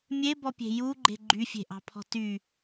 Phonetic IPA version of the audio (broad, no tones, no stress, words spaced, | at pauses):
mʲebɔpʲe̤ juɡ͡ǃe̤ ɡ͡ǃyfʲe̤ʔɑ̤pʰɔ̤ ty